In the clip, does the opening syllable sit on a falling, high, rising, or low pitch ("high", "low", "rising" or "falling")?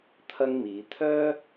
high